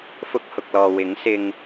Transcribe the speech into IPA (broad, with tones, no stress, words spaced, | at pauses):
fʊ˧k̚ hʊ˨k̚lɔː˨ wɪ˨˥ŋsɪ˧ŋ